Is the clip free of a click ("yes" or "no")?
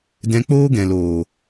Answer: yes